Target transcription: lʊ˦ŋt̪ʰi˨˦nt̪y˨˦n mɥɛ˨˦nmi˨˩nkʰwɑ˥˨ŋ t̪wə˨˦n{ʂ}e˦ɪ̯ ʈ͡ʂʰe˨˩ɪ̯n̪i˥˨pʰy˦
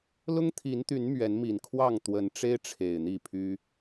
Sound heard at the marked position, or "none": ʈ͡ʂ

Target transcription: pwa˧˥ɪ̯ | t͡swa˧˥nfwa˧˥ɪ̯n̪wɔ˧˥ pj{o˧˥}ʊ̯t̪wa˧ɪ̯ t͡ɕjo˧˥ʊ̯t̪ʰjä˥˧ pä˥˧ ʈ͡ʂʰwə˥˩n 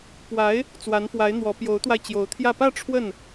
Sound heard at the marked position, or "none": o˧˥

